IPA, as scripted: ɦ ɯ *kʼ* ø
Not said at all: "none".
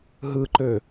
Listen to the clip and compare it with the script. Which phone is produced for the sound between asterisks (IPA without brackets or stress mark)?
ǃ